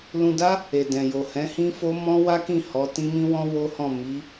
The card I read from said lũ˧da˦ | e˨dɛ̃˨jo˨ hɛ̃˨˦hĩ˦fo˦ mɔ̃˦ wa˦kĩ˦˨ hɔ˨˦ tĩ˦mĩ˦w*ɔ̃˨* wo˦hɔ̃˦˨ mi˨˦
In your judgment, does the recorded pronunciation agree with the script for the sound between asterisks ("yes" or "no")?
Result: no